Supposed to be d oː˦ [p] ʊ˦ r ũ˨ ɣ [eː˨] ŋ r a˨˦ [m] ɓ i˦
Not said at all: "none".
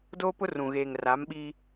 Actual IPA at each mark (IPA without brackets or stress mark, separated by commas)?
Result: p, eː˨, m